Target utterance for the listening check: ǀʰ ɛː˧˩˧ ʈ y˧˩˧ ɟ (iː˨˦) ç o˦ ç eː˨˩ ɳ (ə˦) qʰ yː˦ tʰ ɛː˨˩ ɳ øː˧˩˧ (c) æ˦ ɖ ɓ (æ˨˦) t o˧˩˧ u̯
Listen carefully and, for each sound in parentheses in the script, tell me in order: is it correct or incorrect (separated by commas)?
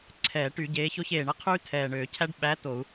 incorrect, correct, incorrect, correct